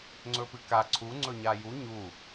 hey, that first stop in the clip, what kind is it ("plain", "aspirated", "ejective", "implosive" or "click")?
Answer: click